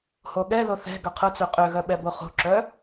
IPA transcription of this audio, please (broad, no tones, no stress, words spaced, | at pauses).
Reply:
hoɠɛðo θɛ̤ ɡœqʰʊt͡sø qʼøɣœɓɛ boχo̤ǁœ